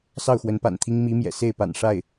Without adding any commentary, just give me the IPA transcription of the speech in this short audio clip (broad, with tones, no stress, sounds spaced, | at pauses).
s ɑ˥˩ ʊ̯ x w ə˧˥ n p a̰˨˩ n t̪ʰ i˥ ŋ m i˧˥ m j ɛ̰˨˩ s e˥˩ ɪ̯ p a̰˨˩ n ʂ a˥˩ ɪ̯